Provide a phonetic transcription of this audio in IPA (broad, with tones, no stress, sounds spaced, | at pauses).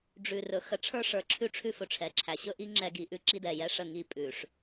ɖ͡ʐ ʉ˨ r ɵ˨˦ x ə˨ ʈ͡ʂʰ ə˞˦ ʂ ə˞˨ ǁʰ ʉ˦ ʈ͡ʂʰ ʉ˦ f ɵ˨ ʈ͡ʂʰ ɛ˨ ǁʰ æ˨ ɕ ɵ˦ ʔ i˦ ŋ͡ǁ ɛ˦ ɡ i˨ ʔ ʉ˦ ǁ i˦ d ɛ˨ j ɛ˦ ʂ ə˦˨ ŋ i˦˨ pʼ ʉ˨ ʂ